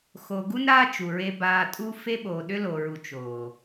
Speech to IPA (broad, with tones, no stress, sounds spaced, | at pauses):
x o˨ ɡ u˦ n ɾ aː˦ t͡ʃ u˨ ɹ e˦ b aː˦ tʼ u˦ f e˦ ɓ oː˨ ɗ ʏ˦ l o˨ ɹ u˨ t͡ʃ oː˨